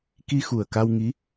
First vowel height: high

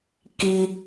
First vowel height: high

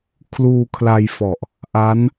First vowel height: high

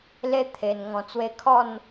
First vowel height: mid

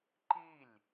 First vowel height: high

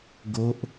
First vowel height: mid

